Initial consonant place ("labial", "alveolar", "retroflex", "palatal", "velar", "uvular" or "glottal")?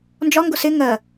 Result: alveolar